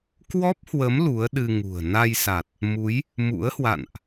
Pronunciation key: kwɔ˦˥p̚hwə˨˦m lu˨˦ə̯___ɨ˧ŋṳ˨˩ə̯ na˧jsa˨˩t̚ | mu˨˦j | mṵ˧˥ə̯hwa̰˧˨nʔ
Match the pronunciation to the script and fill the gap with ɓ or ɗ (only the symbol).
ɗ